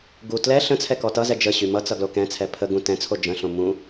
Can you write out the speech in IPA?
ɡ u t l ɛ ɬ ə̃ t͡sʰ ɛ k ɔ t ʌ z ɛ d͡ʒ ə ɕ y m ʌ t͡s ʌ ɡ l o k ɛ̃ t͡sʰ ɛ pʰ ə ɡ ũ t ɛ̃ t͡sʰ o d͡ʒ ə̃ ɬ õ m ũ

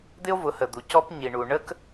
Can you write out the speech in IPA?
d̪ ɪ˦ o̯ v ʊ˨˦ h ə˨ d̪ u˨ c ɔ˦ p ɲ i˨ ɳ u˨ ɳ ə˦ k

